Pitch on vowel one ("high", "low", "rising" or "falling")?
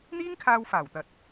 high